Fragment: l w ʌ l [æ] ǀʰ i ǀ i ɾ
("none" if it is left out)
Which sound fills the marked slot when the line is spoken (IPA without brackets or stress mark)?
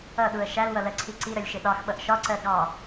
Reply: ɜ